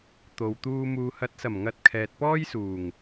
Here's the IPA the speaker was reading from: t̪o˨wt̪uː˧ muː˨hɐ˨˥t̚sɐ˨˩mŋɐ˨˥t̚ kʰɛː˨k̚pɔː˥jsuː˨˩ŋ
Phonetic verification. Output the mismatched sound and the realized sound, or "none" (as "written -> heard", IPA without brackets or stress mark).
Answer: k̚ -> t̚